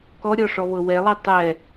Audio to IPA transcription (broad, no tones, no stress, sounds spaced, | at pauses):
k ɔ ɾʲ ɔ ʂ ɔ β ɤ w ɛ lˠ i tˤ ɛ